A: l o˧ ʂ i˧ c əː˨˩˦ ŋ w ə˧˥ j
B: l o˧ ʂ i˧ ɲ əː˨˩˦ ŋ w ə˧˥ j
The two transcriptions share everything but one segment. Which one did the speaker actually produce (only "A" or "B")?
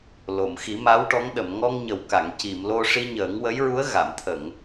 B